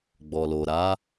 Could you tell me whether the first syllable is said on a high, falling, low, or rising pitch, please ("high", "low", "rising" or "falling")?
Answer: low